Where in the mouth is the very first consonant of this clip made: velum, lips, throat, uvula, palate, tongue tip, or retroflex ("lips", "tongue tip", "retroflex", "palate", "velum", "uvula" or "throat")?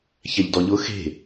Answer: palate